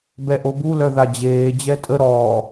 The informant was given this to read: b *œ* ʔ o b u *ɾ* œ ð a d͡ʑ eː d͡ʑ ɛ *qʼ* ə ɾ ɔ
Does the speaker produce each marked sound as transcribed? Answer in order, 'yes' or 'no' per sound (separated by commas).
no, no, no